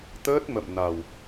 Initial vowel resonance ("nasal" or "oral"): oral